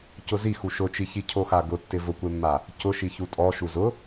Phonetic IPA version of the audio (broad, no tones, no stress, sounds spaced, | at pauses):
c ʊ z i x u ʃ ʊ t͡ʃ i ç i cʰ o x a ɡ ʊ tː ɪ v ʊ kʷ e mː a | c ʊ ʃ i ç u tʼ ɔ ʃ u z ʊ